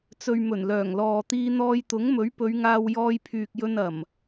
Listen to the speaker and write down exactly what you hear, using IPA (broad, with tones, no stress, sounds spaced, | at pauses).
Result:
t͡s ɵ˨ ɥ m ɵ˨˩ n l œː˨˩ ŋ l ɔː˨ t̪ iː˧ n̪ ɔː˧ j t̪ ʊ˨˥ ŋ m ɵ˨˥ ɥ p ɵ˨˧ ɥ ŋ aː˧ w j ɔː˧ j pʰ yː˨ k̚ j ɵ˧ n ɐ˨˩ m